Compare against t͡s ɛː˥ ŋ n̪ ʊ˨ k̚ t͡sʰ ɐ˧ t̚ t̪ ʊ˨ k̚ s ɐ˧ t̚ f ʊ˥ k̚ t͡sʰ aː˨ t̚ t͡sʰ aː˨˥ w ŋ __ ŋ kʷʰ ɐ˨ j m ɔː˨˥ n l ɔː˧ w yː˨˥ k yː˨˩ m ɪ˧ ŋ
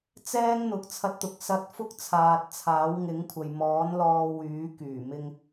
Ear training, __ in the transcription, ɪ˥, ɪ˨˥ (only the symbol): ɪ˨˥